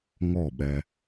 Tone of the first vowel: falling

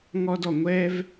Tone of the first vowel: high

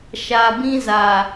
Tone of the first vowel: low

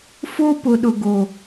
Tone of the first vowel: high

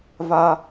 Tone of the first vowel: high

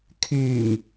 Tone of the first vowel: low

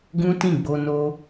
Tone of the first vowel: high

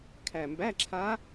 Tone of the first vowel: low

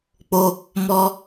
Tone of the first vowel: high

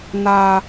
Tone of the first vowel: low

